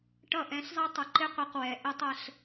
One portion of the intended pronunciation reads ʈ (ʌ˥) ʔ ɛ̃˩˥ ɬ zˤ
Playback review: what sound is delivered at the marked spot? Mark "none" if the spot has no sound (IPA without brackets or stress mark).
ʌ˥˩